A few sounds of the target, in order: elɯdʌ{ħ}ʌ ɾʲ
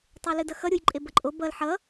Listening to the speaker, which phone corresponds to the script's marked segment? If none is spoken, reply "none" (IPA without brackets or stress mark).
x